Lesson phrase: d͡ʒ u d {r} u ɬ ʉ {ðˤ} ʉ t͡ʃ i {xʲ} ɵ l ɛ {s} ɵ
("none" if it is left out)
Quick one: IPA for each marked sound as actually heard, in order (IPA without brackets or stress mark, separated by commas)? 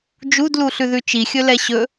l, ð, xʲ, ɕ